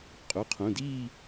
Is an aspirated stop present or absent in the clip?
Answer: present